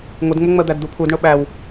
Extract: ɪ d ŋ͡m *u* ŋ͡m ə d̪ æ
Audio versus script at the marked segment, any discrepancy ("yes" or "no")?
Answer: yes